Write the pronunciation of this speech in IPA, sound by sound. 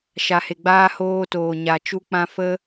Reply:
ʃ a˨ h e˨ ɡ͡b aː˧ h oː˧ t oː˨ ɲ a˨ t͡ʃ u˧ k͡p ã˧ f ə˦

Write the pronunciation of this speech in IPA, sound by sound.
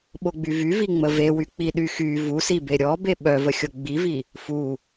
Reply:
ɓ o ɡ͡b y v y v i ŋ͡m ə v e w y k͡p i ɗ y x y v u s i b e ɾʲ ɔ b e ɓ œ v ə xʲ o ɡ͡b i v i | f u

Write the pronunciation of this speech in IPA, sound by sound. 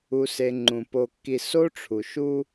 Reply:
u˨ s e˨ ŋ͡ǃ ũ˩ p o˨ kː i˨ s o˥ ʈ͡ʂʰ u˩ ʃ u˦

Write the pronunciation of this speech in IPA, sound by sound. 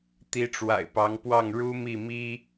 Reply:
t̪ i˧˥ ʈ͡ʂ w a̰˨˩ ɪ̯ p ɑ˧˥ ŋ p w ɑ˥˩ ŋ ɻ u˥ m i˥˩ m i˥

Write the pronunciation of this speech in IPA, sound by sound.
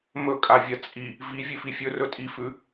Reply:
m ɵ kʼ a vʲ ɐ t͡sʼ i | v i vʲ ʉ f i fʲ ɵ r ɵ tʼ i f ʉ

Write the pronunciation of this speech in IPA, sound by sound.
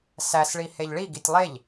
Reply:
s æ s ɭ i h e ʎ ɭ i ɡ i tʲ lˠ e ʎ

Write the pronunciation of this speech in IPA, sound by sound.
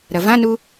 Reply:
ɾ ɐ v ã n u

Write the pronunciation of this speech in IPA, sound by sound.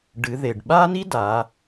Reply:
ɖ ɨ˩˧ ð e˩ ɖ ɓ a˥ n i˥ d a˩˧

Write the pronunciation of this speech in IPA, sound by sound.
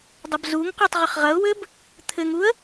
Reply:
dˤ ɐ b z u ŋ q u tˤ ʁ ɘ χ ʁ ɐ ʊ̯ w ɘ b | t̪ʰ ɘ ŋ u ə̯

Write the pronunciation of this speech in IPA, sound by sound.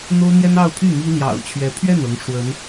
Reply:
n̪ o˥ ʊ̯ n̪ j ɛ˥ n ɑ˥˧ ʊ̯ pʰ y˥˩ m i˥ l j ɑ̰˨˩ ʊ̯ t͡ɕʰ ɥ ɛ˧˥ pʰ ɥ ɛ˥˩ n ɤ˧˥ ŋ ʂ w ə˧˥ n

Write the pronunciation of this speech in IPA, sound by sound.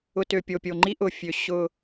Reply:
ʊ˨ t ø˨ pʲ o˨ pʲ o˨ ŋ͡ǃ i˦ ʔ ʊ˨ fʲ ø˨ ɕ ʊ˦

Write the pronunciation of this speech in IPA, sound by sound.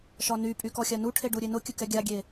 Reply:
ʃ ɒ n y pʼ y k ɔ xʲ a n u ʈʰ e ɖ u ɾʲ e n ʊ kʲ ə k ɛ ɡʲ a ɡʲ e

